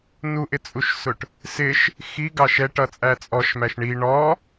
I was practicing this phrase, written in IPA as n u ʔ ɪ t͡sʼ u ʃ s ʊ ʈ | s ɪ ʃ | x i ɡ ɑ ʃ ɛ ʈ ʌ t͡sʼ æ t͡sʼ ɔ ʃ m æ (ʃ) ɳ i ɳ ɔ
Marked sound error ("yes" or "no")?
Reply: no